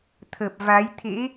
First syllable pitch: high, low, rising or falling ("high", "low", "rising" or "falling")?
low